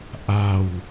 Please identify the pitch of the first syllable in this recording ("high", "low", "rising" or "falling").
low